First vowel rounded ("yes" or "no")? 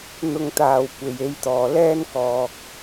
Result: yes